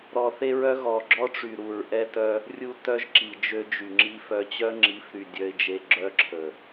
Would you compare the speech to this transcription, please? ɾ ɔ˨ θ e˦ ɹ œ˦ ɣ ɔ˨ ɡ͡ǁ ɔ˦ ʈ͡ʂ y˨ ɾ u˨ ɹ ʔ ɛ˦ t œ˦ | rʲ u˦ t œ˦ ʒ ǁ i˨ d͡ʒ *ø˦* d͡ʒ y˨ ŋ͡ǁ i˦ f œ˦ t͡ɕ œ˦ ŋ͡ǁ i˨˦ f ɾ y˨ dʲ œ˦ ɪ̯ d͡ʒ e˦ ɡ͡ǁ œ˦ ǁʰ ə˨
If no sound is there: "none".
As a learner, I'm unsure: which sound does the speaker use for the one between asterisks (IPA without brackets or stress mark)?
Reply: ø˦